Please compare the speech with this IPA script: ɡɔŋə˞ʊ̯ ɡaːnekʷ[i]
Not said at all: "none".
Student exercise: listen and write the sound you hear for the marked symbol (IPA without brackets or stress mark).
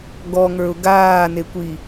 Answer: i